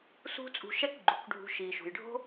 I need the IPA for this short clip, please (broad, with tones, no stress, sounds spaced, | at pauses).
s ṳ˦ t͡sʼ ṳ˧ ʃ ɛ˦ k ɡ͡ǃ u˨ k ɖʱ ṳ˧ ʃ iː˨ ʃ ṳ˨ j ɖʱ o̤˦